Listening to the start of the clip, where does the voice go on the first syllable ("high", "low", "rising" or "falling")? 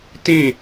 falling